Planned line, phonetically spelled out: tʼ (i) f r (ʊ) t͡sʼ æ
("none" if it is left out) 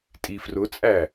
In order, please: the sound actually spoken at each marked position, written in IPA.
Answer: i, ʊ

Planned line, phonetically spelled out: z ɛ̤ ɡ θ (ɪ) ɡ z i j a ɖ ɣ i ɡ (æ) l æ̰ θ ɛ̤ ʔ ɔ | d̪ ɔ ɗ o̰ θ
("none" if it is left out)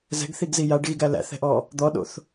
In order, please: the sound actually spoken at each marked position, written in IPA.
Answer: i, æ

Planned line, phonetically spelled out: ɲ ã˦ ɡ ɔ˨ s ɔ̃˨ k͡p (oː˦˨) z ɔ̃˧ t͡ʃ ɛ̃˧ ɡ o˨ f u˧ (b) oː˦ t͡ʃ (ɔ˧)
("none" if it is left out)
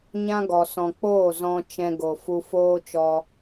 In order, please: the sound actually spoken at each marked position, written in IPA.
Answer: oː˦˨, f, ɔ˧

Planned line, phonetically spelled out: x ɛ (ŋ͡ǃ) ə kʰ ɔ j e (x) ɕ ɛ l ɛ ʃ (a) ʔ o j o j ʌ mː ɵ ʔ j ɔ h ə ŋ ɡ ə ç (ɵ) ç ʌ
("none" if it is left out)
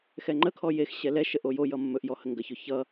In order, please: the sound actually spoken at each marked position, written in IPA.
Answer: ŋ͡ǃ, x, ə, ɵ

